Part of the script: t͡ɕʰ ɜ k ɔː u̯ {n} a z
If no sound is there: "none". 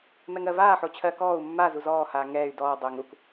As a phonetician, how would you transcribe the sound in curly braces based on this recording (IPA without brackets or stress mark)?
mː